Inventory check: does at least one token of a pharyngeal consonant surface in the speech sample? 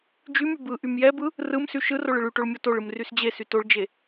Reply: no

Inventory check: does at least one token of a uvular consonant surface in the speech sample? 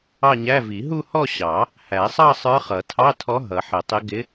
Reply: yes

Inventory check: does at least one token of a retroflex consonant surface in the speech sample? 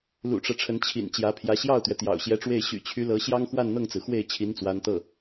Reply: yes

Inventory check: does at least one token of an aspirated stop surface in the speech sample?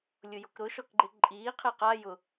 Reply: yes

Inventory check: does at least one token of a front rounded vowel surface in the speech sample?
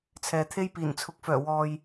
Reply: yes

